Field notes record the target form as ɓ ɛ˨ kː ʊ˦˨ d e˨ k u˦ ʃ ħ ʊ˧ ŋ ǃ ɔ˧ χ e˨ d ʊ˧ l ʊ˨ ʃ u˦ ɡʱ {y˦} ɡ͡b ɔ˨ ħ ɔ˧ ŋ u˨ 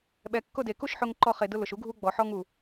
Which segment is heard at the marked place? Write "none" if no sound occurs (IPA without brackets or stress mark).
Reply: u˦